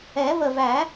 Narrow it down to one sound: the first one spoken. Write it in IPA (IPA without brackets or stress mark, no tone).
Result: ɛ